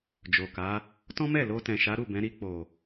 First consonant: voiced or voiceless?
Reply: voiced